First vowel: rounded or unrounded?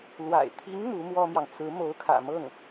unrounded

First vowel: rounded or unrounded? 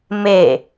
unrounded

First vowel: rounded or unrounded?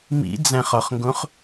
unrounded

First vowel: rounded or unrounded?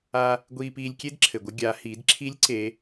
unrounded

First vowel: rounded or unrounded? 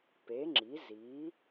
unrounded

